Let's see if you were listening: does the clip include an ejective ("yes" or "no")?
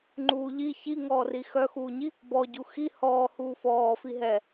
no